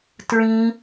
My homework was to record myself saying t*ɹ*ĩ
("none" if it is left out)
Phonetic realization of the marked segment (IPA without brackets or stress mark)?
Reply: ɹ